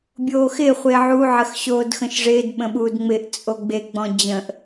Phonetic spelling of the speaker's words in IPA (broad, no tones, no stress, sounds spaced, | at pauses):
bʲ oː x ɪ χʷ ɪː ʕ u ʕ ə x ɕ oː d x ə̃ ʃ ʐ ɪː d ɓ ə̃ ɓ uː d ŋ͡m ɪ ʔ t͡sʼ o ɡ͡b e ɡ͡b ɔ̃ d͡ʑ ə̃ ʔ